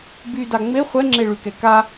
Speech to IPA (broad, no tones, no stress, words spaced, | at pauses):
byda ŋ͡me χʷɛŋ͡ǁeɭykɛ ka